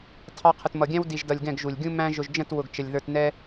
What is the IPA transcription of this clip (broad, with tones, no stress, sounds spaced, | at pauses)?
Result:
tʰ ɑ˦ qʰ ə˨ t m ʌ˨ ɡʲ æ̃˦ w d i˧ ʒ d ʌ˧ lʲ ɡ ɛ̃˦˨ ɡ ʒ u˨ lʲ ɡʲ ũ˦ m æ̃˦ ʒ ʊ˧ ʒ d͡ʒ ə̃˦˨ t w ʊ˨ ɡ t͡ʃ ə˨ lʲ ð ə˞˧ t n ɛ˦